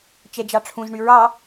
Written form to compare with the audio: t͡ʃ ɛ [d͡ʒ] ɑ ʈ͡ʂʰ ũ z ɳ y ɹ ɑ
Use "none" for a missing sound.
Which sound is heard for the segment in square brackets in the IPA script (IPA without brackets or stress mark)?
d͡ʒ